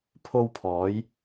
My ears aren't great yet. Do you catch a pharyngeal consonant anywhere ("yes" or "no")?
no